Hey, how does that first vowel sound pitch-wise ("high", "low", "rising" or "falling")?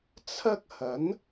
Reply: high